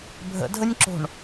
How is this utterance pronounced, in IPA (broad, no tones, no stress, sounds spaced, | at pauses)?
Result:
bʱ ə̰ dʱ ə nʲ ǁ o̤ ɳ